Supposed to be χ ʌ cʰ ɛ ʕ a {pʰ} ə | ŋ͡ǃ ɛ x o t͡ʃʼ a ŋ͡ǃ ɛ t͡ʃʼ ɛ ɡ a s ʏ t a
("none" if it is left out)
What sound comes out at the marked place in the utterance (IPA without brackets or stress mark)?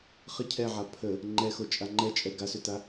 pʰ